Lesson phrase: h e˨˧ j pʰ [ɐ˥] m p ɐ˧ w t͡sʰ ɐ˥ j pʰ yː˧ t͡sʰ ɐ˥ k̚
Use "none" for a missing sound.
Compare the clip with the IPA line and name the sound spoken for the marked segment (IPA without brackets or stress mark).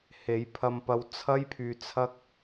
ɐ˧